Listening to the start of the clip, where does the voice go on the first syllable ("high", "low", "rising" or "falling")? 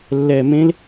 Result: low